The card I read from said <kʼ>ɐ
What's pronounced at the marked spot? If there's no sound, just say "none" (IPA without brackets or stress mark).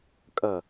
kʼ